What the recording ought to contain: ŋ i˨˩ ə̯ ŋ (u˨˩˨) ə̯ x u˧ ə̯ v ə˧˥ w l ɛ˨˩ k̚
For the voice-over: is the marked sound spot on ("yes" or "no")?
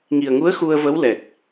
no